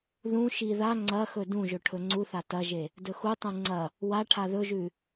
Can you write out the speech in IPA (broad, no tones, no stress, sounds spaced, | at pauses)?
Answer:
ð ũ ʃ i ð a ŋ͡ǀ ɐ x ɵ d ũ ʒ ɵ ʈʰ ɵ ŋ͡ǀ u θ a t ɐ ʒ e | d ɵ x u tˤ ũ ŋ͡ǀ ɐ | w a ʈʰ a ð ɵ ʒ ʉ